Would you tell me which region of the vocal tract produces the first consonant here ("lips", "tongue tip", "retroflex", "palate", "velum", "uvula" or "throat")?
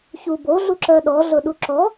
palate